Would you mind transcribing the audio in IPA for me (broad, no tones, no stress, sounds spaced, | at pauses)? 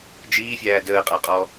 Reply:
d͡ʒ iː fʲ æː d əː qʼ a qʼ ɔ